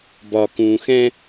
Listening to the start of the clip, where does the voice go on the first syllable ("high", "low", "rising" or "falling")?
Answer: low